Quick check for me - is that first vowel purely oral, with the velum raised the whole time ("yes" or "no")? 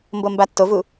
yes